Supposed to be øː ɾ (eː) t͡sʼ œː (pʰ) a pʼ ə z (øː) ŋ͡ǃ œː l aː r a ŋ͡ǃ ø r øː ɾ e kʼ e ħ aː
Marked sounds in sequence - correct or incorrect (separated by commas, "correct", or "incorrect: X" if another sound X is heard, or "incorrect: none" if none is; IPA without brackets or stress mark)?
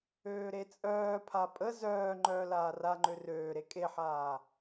incorrect: e, correct, incorrect: œː